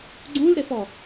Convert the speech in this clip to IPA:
ɡ͡ǀ ũ l ɾ e f ɔ

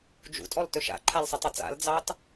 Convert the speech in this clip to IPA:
d͡ʒ ṵ tʼ ɔ l t ɵ ʃ a̰ ǃʰ a l sˤ ə tˤ ɑ t͡s a̰ l d͡z ɑ t

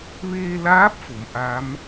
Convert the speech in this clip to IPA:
ʋ eː˧ l aː˧˥ p̚ f o˩˧ m ʔ a˧˥ m

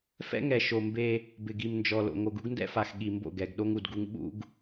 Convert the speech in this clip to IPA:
f ɛ̰˦ ŋ ɛ˨ ʃ o˨ m b e˦ | b ɪ˨ ɡ i˨ m n d͡ʒ ɔ˨ l o̰˨ ŋ o˨ ɡ u˦ ɡ n d ɛ̰˦ f a˨ x ɠ i˨ m b o̰˦˨ ɡ ɛ˨ ɡ ɗ o˦ ŋ u˨ d ɡ u˦ ŋ ɓ ṵ˦ ɡ

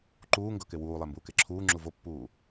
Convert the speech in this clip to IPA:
ǃ uː ŋ ɡ ɤ k e w uː lˠ e m b uː k e ǁʰ uː ŋ͡ǁ u v o pː uː

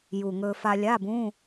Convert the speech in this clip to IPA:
j u˨˩ ŋ ɵ˧ f a˧ lʲ a˧˥˧ b ũ˧˥˧

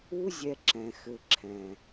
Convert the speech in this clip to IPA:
u˦ zʲ ɛ˧ ǁ ɛ̃˨ x ɘ˨ ǁʰ ɛ̃˨

